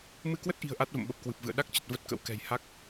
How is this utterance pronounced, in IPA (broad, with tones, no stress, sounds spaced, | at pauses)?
m ɨ˧ k w ə˦˥ t̚ ʔ i̤˨˩ ə̯ ʔ a˦˥ t̚ v ə̰˧˨ m ɓ ə˨˩ p̚ k w ɨ˨˩ p̚ v ɨ̰˧˨ ə̯ ɗ a˦˥ k̚ t͡ɕ ə˨˩ t̚ v ə˦˥ t̚ k ə̰˧˥ w k ɛ̤˨˩ j h a˦˥ k̚